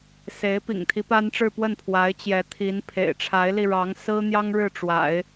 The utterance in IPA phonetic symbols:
se˧˥ɪ̯ pḭ˨˩ŋt̪ʰi˧˥pa˥nʈ͡ʂɻ̩˥˧ pwə˥˩npʰwa˧˥ɪ̯ t͡ɕjɛ˧˥t̪ʰi˧˥n pʰḛ˨˩ɪ̯ʈ͡ʂʰa˧˥ɪ̯li˧ɻɑ˧˥ŋ sɹ̩˥n̪jɑ˥ŋ ɻɻ̩˥˩ʈ͡ʂwa̰˨˩˦ɪ̯

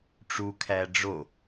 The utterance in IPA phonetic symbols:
ʈ͡ʂu kʰæɖ͡ʐo

